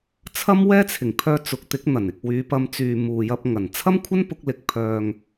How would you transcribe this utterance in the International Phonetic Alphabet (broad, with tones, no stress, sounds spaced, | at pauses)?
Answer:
t͡sʰ ɐ˥ m w ɛː˥ t͡sʰ ɪ˨˩ ŋ pʰ œː˧ t͡s ʊ˨˥ k̚ t̪ ɪ˨˥ k̚ n̪ ɐ˨˩ n ɪ˨ k̚ w yː˨˧ p ɐ˧ m t͡s yː˨ m uː˨ j ɐ˧ p̚ ŋ ɐ˨˩ n t͡sʰ ɐ˥ m kʷʰ ɐ˥ n p ʊ˥ k̚ l ɪ˧ k̚ pʰ œː˨ ŋ